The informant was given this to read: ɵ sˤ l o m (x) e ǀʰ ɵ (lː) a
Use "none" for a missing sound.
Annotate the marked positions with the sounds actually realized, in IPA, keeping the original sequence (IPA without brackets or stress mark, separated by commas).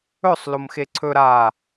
x, ɾ